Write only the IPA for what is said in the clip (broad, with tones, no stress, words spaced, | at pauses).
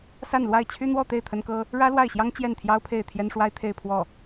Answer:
sa˥˧nlwa˥˩ɪ̯ t͡ɕʰy˥n̪wɔ˥˧t̪e˥˩ɪ̯ t̪ʰə˥nkɤ˥ | ɻä˥lwa˥˩ɪ̯ɕjɑ˥ŋ t͡ɕjɛ˥˩nt̪ʰjɑ˥ʊ̯pʰe˥˩ɪ̯ t̪ʰjɛ˥nʂwa˥ɪ̯t̪ʰe˥˧ɪ̯pʰwɔ˥˩